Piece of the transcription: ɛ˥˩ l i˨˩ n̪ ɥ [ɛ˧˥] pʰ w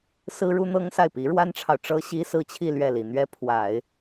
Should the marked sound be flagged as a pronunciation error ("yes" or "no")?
yes